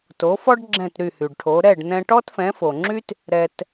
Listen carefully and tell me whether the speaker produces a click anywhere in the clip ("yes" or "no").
yes